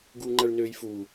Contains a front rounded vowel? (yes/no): yes